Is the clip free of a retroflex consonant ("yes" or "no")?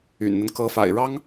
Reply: no